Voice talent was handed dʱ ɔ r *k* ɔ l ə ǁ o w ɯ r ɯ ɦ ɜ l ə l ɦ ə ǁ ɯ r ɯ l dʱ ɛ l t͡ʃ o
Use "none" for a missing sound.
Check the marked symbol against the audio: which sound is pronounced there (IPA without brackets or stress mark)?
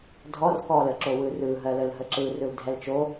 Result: k